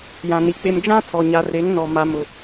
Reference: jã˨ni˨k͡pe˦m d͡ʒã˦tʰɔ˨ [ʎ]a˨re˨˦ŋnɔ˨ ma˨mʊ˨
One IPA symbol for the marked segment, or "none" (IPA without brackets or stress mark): ɲ